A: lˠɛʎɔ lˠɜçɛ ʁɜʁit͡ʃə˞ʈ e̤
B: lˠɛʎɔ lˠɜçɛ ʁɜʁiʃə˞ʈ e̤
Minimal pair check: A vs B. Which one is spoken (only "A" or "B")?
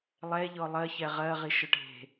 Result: B